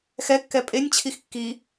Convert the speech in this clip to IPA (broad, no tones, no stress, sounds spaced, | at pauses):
x ɛ kː ɛ pʼ e nʲ t͡ɕʰ i x kː i